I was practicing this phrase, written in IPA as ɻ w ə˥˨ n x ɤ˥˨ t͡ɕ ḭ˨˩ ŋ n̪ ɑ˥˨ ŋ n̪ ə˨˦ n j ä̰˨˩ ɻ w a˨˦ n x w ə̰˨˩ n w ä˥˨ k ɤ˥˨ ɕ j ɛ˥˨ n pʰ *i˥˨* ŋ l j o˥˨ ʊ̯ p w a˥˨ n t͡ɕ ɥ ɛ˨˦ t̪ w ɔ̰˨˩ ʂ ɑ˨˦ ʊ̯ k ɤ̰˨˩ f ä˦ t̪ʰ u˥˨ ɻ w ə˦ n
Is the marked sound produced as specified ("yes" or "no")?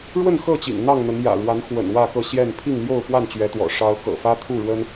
yes